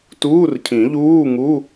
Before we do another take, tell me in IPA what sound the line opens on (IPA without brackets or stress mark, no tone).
t